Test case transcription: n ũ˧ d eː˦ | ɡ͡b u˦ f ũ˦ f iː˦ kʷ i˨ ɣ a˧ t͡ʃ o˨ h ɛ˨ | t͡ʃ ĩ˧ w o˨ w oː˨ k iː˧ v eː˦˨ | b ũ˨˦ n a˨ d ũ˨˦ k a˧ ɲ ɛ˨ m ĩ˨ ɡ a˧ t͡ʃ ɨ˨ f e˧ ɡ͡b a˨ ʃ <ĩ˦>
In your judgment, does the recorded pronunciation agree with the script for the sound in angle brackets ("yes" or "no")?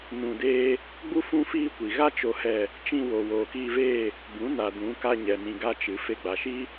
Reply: no